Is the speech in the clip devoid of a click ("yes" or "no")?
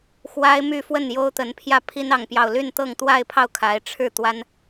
yes